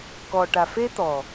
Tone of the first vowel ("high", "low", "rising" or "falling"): low